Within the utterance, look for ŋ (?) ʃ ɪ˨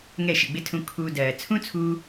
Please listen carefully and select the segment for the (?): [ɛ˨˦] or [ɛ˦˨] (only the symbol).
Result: ɛ˦˨